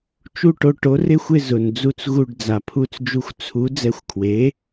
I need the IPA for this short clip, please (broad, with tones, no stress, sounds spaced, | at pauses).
t͡ʃ u˥˨ ʈ o˧ ʈ o˩˥ r ɪ˥˨ xʷ ɪ˥˨ z ʊ˩ n d͡z u˧ t͡s ɣ u˧˩ ɖ d͡z a˩ pʰ u˧˩ t͡s d͡ʒ u˧ xʷ t͡sʰ u˩˥ d͡z ɛ˧˩ xʷ kʰ w e˩˥